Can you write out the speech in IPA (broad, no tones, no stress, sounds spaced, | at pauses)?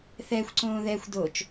θ ɛ xʷ ǀ õː ð ɛ xʷ d o t͡ʃ